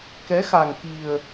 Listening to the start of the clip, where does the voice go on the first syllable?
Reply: rising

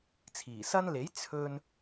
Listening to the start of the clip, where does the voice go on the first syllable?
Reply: low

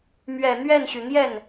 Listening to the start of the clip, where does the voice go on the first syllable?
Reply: low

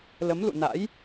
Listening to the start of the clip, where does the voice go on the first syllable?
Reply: rising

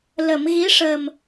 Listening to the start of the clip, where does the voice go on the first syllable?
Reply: low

